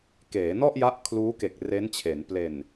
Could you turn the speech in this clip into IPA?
keː˩˦nɔ˥˩ʔja˦˥ʔ kʰluː˦˥ke˨˩k̚ re˦˥nt͡ɕʰe˩˦n ple˨˩n

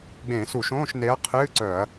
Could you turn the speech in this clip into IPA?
ɡ͡bẽ˧˩˧su˧˩˧ʃõː˧˥˧ʃ ne˨˥ɐ̯qʰɨː˧˥˧ǀœ˧˩˧ɐ̯

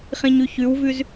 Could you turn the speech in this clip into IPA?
χĩɲʉçʉwvʉz

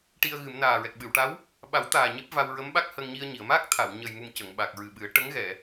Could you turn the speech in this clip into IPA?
ʈi˧ə̯ɣɨ˨˩˦m naː˨˩ɹɛ˨˩k̚ɓɨ˨˩˨wʈa˧˥w | ɓa˨˩˦wt̪aː˨˩ ɲe˦˥p̚va˧w ɹə˧˥mɓa˦˥k̚ hə˧ŋɲi˧ə̯ɲi˨˩˨ə̯ ma˦˥k̚ t̪ʰa˨˩˨w ɲə˨˩jmu˨˩m cə˨˩˨ŋ ɓa˨˩k̚ɹɨ˨˩ɓɨ˨˩˦ə̯ ʈə˧˥ŋɣɛ˨˩˨

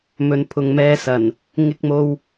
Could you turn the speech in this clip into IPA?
mɵ˨˧npʰʊ˨ŋmɛː˧sɐ˨˩n | ŋɪ˧k̚mo˧w

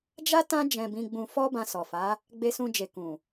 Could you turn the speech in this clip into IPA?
d͡ʒa˦ tã˦ d͡ʒɛ̃˧bĩ˧ɡ͡bũ˧ fɔ˦bã˧sɔ˨fa˨˦ | ɡ͡be˧sũ˧d͡ʒe˨ kũ˨

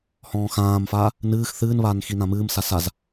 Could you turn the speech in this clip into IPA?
hɔ̃ːxãːmfaː | nɨːx θɨːnβaːn xinãmɨːmsa saz

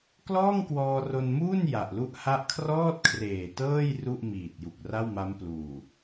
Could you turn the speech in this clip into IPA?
klɔː˥˩ŋkwɔː˧ro˧nmuː˥˩n ja˨˩ʔlu˥˩ʔ ha˦˥ʔkʰrɔː˥˩t̚kʰreː˨˩ tɤː˥˩j ru˥˩ʔmiː˨˩t̚ ju˨˩k̚ra˥˩wma˦˥mpluː˨˩

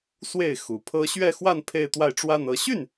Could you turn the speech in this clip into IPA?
swe˥˩ɪ̯xu˨˩pʰɤ˥ ɕɥɛ˥˧xwa˥˧n pʰe˥˧ɪ̯t̪wa˥˧ɪ̯ʈ͡ʂwa˥˧n ɤ˥˧ ɕy˥˩n

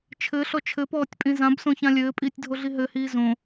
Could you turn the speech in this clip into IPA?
t͡ʃʰɘɬɔ t͡ʃʰɘpɔːtʲpʼĩ zãbsõçã lʲɘːpʼiːtʲdʱoɮi ɦɘhiː zõ

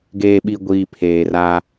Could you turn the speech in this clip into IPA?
ɡeː˨ɓi˨ ɡʷiː˨ pʰeː˨ra˦

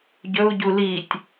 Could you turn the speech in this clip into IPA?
ɟɵu̯ɟu litʲ

